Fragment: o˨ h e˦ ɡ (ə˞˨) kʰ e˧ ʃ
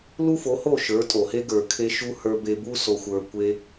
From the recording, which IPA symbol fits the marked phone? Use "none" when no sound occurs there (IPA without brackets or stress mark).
ə˞˨